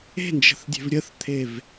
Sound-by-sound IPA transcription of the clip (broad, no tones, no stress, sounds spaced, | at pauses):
e̤ n d͡ʒ ə̤ θ dʲ e̤ v ɾʲ ə θ t̪ʰ e v